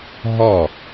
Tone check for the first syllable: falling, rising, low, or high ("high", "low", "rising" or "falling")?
falling